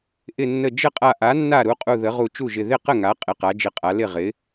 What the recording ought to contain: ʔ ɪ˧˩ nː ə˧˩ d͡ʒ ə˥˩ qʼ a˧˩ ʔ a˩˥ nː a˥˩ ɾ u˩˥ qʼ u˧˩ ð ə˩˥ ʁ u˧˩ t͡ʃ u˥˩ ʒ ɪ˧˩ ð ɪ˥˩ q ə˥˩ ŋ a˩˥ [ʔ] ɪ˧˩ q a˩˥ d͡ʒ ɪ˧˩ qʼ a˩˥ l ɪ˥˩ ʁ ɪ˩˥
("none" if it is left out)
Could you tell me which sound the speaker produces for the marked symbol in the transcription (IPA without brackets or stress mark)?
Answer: qʼ